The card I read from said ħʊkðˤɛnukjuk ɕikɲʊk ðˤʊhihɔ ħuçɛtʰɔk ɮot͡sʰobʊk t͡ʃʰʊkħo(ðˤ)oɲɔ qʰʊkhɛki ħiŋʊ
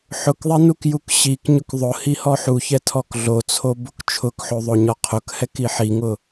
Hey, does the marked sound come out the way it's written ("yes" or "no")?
yes